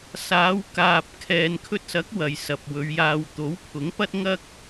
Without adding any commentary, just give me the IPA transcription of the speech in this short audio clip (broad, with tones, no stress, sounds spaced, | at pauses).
s aː˨˧ w k aː˨ p̚ kʰ ɛː˨ n kʰ ɵ˧ t̚ s ɐ˨˥ k̚ w ɐ˨ j s ɐ˨ p̚ w ɵ˨˧ ɥ j aː˧ w t̪ o˨˥ w pʰ ʊ˨˥ ŋ p ɐ˥ t̚ ŋ ɐ˥ k̚